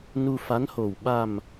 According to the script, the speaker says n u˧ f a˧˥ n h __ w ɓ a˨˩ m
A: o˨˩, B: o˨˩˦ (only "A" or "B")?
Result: A